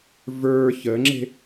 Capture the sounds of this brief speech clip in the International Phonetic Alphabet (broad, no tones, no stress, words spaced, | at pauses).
və˞ çəŋ͡ǁe̤